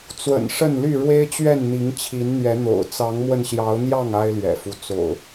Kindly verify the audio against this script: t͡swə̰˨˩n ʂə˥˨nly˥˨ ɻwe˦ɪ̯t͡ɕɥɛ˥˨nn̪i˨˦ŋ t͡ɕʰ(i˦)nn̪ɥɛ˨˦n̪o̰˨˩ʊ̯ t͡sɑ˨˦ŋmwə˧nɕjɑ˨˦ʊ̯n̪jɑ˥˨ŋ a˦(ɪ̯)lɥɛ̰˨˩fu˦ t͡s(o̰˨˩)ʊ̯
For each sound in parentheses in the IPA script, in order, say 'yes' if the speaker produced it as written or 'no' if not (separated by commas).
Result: no, yes, yes